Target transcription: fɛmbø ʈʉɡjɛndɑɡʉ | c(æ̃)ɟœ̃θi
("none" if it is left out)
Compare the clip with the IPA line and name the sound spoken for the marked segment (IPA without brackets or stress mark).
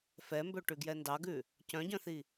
œ̃